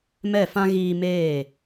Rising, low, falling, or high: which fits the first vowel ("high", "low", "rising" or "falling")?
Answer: falling